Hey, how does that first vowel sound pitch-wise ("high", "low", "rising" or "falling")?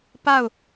falling